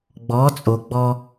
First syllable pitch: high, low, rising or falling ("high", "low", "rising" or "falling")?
rising